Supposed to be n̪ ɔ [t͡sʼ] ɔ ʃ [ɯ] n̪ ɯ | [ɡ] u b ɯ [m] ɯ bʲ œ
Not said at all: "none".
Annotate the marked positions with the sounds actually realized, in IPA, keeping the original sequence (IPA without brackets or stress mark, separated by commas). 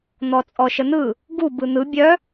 t͡sʼ, ə, ɡ, n̪